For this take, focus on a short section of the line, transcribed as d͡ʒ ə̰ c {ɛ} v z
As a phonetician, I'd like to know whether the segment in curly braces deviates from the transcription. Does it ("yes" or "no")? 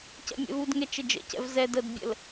yes